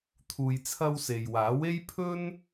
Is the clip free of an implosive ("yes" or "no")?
yes